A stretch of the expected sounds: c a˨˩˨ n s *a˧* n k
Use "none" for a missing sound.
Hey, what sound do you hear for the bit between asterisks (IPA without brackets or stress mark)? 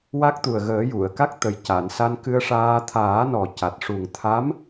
a˧